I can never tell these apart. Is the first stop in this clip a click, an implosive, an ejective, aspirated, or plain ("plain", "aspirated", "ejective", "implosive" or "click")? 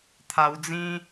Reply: aspirated